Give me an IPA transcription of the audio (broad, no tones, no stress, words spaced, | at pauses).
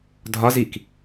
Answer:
dʱɒz ik